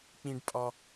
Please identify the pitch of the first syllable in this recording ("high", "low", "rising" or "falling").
low